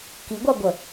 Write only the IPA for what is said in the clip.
k i ɡʷ a ɡʷ ə

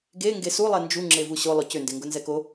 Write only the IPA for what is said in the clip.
ɡ e ŋ ɡ e s u lˠ ɛ n d͡ʒ u ŋ͡ǁ e v u ɕ o lˠ ʊ c ʏ n d e ŋ ɡ ʊ n z ɛ k o

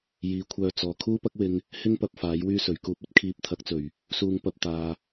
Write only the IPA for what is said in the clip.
j iː˨˥ kʷʰ œː˧ t͡s ɔː˨˩ kʰ uː˥ p ɐ˥ k̚ w ɪ˧ ŋ | h ɪ˥ ŋ p ɐ˧ p̚ f aː˨˥ j w yː˥ s ɵ˨˩ ɥ k uː˧ p̚ ɵ˥ t̚ kʰ iː˧ p̚ t̪ʰ ɐ˨˥ k̚ t͡s ɵ˨˩ ɥ | s uː˧ ŋ p ɐ˧ p̚ t̪ aː˨

